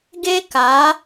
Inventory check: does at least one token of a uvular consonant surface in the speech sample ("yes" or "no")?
no